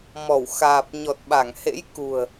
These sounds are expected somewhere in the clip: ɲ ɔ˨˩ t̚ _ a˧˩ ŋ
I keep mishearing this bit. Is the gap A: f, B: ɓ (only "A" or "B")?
B